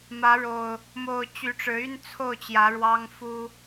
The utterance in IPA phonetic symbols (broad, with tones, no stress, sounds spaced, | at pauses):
m ä˨˦ ɻ o˨˩ ʊ̯ | m o˨˩ ʊ̯ t͡ɕ y˨˦ ʈ͡ʂ ɻ̩˨˦ y˦ n t͡sʰ o˥˨ ʊ̯ t͡ɕ j ä˨˦ ɻ w ɑ˦ ŋ f u˦